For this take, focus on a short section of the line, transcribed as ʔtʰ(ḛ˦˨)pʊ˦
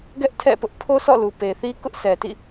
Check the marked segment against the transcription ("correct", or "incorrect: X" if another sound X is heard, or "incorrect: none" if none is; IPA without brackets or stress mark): incorrect: ɛ̰˦˨